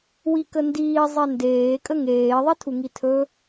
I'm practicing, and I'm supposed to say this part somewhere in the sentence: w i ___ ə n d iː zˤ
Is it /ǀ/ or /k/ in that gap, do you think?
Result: k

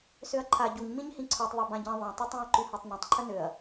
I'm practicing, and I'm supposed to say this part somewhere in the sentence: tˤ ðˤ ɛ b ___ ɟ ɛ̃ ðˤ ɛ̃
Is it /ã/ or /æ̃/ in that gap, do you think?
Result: ã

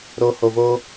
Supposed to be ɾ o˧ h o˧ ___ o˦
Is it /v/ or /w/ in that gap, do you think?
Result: v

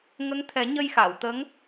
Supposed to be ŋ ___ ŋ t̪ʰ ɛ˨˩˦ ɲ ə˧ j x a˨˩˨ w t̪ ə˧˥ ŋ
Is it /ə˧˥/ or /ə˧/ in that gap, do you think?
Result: ə˧˥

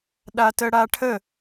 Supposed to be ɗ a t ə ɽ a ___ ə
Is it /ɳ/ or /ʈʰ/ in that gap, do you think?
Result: ʈʰ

